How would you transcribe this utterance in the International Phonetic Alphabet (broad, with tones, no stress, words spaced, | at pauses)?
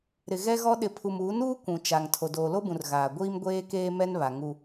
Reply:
ɾɪ˨ ɣɛ˦ɣɔ˦ ɗɪ˨pʰu˨muː˨˦nuː˦ kʷũ˨ t͡ʃa˨ŋ tʰo˨doː˨lo˦bũ˨r ɣaː˨ ɡʷiː˦m ɡʷeː˦keː˦ mɛ˦nβa˨ ŋu˦